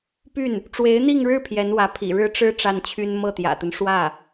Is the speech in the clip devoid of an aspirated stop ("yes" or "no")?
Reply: no